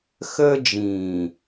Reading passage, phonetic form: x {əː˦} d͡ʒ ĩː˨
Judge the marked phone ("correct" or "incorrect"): correct